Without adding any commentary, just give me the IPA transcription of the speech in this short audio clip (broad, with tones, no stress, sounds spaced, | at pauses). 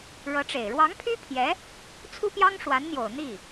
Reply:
ɻ ɤ˧˥ ʈ͡ʂ e˨˩ ɪ̯ ɻ w ɑ˧˥ ŋ pʰ y˥ pʰ j ɛ˧˥ | t͡sʰ u˥ p j ɑ˥ ŋ ʂ w a˧˥ n n̪ j o˨˩ ʊ̯ n̪ i˥˩